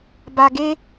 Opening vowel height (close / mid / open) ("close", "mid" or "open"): open